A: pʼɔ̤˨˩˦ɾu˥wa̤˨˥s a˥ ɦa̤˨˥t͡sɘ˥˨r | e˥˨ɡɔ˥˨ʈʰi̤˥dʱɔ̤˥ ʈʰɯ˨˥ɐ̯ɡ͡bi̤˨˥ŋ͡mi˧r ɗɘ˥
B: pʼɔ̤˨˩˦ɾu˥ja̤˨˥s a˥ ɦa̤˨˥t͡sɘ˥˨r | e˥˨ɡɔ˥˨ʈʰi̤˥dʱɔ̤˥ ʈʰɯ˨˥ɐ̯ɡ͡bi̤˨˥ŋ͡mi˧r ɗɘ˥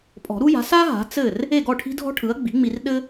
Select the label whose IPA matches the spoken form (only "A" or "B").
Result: B